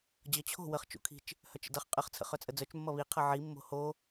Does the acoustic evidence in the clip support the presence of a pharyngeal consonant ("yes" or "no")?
yes